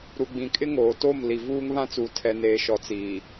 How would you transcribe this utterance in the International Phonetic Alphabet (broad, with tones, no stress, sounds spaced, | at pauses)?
ɾ u˨ ɡ͡b ĩ˨ kʼ ɪ˦ ŋ oː˨ t o˦˨ m l i˨ v uː˦ ŋ β ã˦ t͡s uː˨ tʰ ɛ˨ n eː˨ ʃ ɔ˨ t͡s iː˨